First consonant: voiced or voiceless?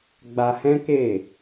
voiced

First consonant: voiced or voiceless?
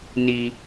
voiced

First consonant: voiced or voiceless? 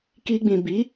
voiceless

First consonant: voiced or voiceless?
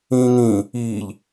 voiced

